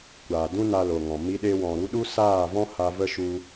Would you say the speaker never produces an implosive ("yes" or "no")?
no